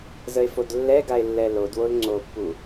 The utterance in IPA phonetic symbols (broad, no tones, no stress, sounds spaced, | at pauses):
z ə e̯ f o d lː ɛ ɡ a e̯ lː ɛ l o d w o l ŋ͡ǀ o pː u